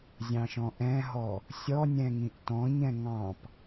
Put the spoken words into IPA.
zʲ ɑ̃ ʃ ɔ̃ ʔ ɛ̃ ɦ ɔ | sʲ ɔ nʲ ɛ̃ ŋ ĩ ʔ t ɔ̃ ɲ ɛ̃ ŋ ɑ̃ p

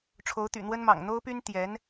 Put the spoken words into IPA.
ʈ͡ʂʰ o˧˥ ʊ̯ t̪ y̰˨˩ n̪ w ə˥ n m ɑ̰˨˩ ŋ n̪ o˥ ʊ̯ p y˥ n t̪ j ɛ˧˥ n

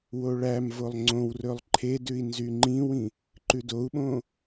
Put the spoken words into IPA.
w o ɭ æ m v o lˠ ŋ͡ǀ õ w r ɵ lˠ ǃʰ e d ʉ i̯ n z y ŋ͡ǃ ĩ w ĩ | ǃ ʉ d o u̯ ɓ õ

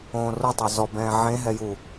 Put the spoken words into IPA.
õː r o tˤ o z ɔ b ɛ̃ː ʕ ẽ ɦ ɛ j u

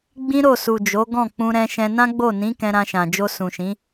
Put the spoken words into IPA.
ɡ͡b ĩ˦ ɾ o˦˨ s u˨ d͡ʒ o˨˦ ɡ ɔ̃˦˨ k͡p ũ˧ ɾ ɛ̃˧ ʃ ɛ̃˧ n ã˦ ɡ͡b o˦˨ n ĩ˨˦ k ɛ̃˧ ɾ ã˧ ʃ ã˨ d͡ʒ o˧ s ũ˨ ʃ ĩ˨˦

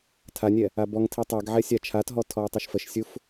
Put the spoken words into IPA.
tʰ a nʲ ɛ | a b ɔ ŋ tʰ i tˤ ɛ ɡ ʕ ɛ sʲ a t͡ʃʰ a t ɦ ɔ tʰ ɔ ʊ̯ tˤ ɛ ʃ f ə ʃ sʲ u f

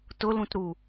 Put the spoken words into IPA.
t ʊ l ũ t ɾ u

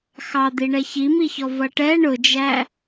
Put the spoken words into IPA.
x ɑ d̪ i ɳ ɛ ç i m i ç ɔ v ʌ ʈ ɛ ɳ ʊ d͡ʒ æ

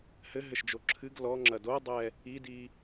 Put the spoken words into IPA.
h ɘ ɦ ɘ ʃ d͡ʒ o ǁʰ ɨ ɡ l ɔ ŋ͡ǁ ɐ d o dˤ ɛ | i d i

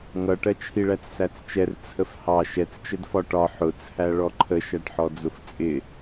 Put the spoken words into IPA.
ŋ ʌ ʈ ɜ t͡ʃʰ i ɭ æ t͡s s æ t͡s t͡ʃ ɛ r t͡sʰ ə f h ɑ ʃ ɛ t͡s t͡ʃ ə d f ɒ ʈ ɒ ħ ʊ t͡sʰ æ ɭ ɔ ǃʰ ə ʃ æ ʈ ħ ɔ d͡z ʊ f t͡sʼ ɪ

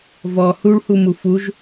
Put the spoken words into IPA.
v ɔ h u ɭ h u m u f u ʒ

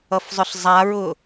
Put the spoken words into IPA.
ʌ f zˤ ʏ ɬ zˤ a ɹ ʊ

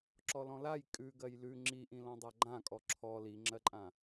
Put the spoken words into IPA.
ǁ ɔ l ɔ̃ l a j kʼ ʉ ɡ ɜ j l ʉ ŋ͡ǁ i ʔ ĩ l ɔ̃ dˤ a ɡ͡ǃ ã kʼ ɔ ǁʰ ɔ l i ŋ͡ǁ ɜ ǃʼ ã

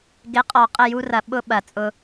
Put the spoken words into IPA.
ɡ ɪ˨˦ qʼ ɔ˨ qʼ ə˦˨ j u˦ r ɐ˨ ɓ ʊ˦ ɓ ɐ˨ t͡sʼ ʊ˦

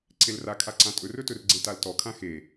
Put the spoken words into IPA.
ǀ e l r a kʰ a ǀ ã tʼ ɵ r ɵ t ɵ r ɡ͡ǀ e t a l t ɔ kʰ ã x e

